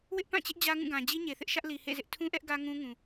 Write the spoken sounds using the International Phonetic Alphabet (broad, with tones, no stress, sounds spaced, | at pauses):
w ɪ˦ ʔ p ã˦˨ t͡ɕ ɪ˦ ʔ d͡ʑ ä˦ ŋ ũ˦˨ ɡ ã˨ d͡ʑ i˦ ɲ e˨ θ ɪ˦ ʔ ʃ ä˦ ʔ l i˨ h ḛ˦˨ z ɪ˦ ʔ tʰ ũ˦ ʔ ɛ˦ ʔ ɡ ä˦ ŋ ũ˦ ŋ ũ˨